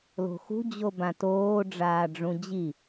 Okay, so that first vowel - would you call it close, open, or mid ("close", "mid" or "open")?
mid